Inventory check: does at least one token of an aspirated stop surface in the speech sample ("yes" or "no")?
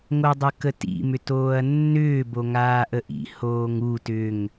no